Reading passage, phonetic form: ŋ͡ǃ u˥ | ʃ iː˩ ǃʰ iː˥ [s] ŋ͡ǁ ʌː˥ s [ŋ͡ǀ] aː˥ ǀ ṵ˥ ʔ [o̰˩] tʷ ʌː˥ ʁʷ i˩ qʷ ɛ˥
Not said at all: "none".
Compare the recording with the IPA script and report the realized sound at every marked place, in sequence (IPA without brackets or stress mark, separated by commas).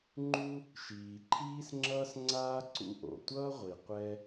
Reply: s, ŋ͡ǀ, o̰˩